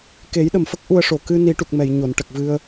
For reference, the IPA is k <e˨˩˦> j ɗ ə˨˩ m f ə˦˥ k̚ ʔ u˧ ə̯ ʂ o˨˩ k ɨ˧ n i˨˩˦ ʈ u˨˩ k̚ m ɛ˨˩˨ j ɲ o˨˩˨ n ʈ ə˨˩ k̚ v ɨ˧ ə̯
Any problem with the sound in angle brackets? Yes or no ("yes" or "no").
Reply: no